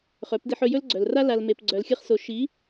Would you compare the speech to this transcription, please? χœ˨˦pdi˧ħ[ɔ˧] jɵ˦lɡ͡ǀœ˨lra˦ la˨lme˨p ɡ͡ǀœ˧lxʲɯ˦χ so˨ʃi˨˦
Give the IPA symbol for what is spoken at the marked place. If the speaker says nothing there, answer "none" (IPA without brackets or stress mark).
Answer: ɵ˧